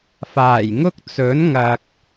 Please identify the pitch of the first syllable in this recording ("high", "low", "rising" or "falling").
low